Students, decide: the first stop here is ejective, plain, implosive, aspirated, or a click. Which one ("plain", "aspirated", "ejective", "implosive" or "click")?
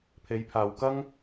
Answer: aspirated